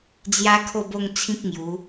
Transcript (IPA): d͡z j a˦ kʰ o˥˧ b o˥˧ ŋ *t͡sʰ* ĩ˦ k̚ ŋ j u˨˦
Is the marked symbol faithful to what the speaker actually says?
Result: yes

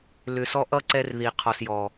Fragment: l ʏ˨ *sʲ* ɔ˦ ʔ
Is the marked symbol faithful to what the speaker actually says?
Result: no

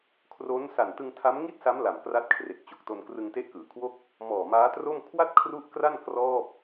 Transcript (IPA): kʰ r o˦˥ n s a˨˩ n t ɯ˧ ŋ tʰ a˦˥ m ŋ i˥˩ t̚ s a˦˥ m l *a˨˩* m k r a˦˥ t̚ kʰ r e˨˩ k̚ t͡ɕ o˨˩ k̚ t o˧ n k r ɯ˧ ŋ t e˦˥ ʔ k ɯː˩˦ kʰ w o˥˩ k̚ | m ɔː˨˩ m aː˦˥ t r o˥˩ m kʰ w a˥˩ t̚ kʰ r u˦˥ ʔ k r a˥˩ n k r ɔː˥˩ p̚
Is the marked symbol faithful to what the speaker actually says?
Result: yes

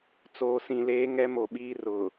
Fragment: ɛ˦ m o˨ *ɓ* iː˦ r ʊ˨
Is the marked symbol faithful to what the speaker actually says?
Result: yes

